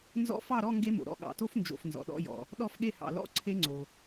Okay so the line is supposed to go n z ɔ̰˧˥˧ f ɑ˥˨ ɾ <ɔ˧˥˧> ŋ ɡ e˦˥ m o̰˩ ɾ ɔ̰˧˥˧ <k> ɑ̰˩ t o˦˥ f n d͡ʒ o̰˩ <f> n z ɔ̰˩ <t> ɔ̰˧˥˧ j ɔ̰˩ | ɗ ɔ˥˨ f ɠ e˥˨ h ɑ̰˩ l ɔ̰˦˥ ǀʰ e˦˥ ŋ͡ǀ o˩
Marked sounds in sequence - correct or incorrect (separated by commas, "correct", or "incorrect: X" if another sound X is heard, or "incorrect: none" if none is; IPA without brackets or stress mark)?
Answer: correct, incorrect: ɠ, correct, incorrect: ɗ